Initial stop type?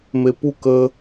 plain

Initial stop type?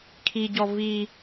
aspirated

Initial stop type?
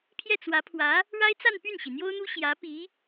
aspirated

